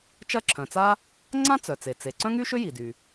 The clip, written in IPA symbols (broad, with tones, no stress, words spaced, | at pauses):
t͡ʃɐ˥ǁʰœ̃˩t͡sa˥ | ŋ͡ǀã˥t͡sœ˩t͡se˩ t͡se˩ ǀœ̃˥ŋy˥ʃʏ˥ ji˩dy˩